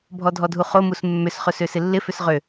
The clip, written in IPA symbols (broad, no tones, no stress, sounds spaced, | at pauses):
bʱ ɔ dʱ ɔ dʱ u χ o m u s mː ʏ s χ ɵ s ø s ɪ lː ɪ f ʏ s ʁ ø